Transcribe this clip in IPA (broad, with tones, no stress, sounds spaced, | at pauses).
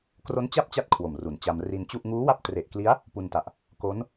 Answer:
k r o˦˥ n t͡ɕ a˥˩ p̚ t͡ɕ a˦˥ t̚ kʰ w o˨˩ m r u˩˦ n t͡ɕ a˧ m r i˧ n t͡ɕ u˥˩ ʔ ŋ uː˦˥ w a˦˥ p̚ t r e˨˩ ʔ k l i˦˥ a̯ | p u˧ n t a˨˩ ʔ | k o˦˥ n